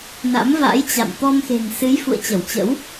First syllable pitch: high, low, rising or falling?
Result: rising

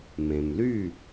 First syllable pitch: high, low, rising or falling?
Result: low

